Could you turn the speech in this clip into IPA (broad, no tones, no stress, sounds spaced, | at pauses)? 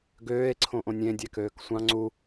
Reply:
ɡ øː e̯ ǀʰ õ ʔ õ nʲ ẽ dʲ æ k øː k sʷ ɑ̃ ŋ͡ǀ u